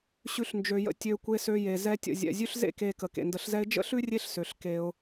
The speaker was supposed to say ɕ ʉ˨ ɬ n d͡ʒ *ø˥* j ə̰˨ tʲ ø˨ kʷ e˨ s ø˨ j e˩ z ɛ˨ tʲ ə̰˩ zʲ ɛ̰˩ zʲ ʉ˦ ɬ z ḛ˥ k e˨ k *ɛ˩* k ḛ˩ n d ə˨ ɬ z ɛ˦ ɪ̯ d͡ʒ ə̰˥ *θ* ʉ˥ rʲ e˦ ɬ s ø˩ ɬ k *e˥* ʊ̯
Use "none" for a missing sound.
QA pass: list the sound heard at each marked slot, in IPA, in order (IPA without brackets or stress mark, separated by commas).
ø˩, ə˩, ɬ, e˨